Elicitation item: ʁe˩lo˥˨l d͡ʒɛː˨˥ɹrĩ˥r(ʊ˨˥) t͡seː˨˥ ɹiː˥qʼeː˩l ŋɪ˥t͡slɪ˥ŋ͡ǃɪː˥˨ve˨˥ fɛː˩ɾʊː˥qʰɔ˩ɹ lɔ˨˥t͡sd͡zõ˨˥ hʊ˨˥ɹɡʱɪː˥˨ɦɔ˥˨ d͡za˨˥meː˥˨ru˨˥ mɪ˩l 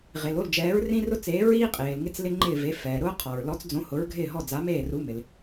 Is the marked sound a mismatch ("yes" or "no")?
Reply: yes